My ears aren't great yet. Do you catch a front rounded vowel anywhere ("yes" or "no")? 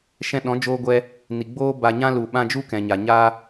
no